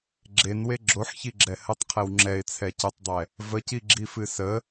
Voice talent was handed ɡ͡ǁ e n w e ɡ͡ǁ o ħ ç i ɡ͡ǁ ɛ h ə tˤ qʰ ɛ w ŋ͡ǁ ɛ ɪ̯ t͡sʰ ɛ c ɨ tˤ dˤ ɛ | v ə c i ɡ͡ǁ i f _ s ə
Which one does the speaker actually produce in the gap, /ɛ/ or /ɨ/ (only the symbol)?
ɨ